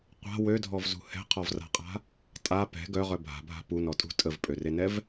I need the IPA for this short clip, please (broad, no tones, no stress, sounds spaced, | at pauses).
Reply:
qʷ a̤ w ø dʱ ɔ v z ṳ h ɛ̤ qʰ ɔ v r a̤ qʼ a̤ | tʼ a p ɛ̤ ɡ œ ʁ œ bʱ a̤ bʱ a̤ p u n ɔ tʼ ṳ tʼ ə v pʼ ø r e n ɛ v